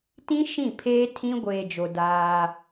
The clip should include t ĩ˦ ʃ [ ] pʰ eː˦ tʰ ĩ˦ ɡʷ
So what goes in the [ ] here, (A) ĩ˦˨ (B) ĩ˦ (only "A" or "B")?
A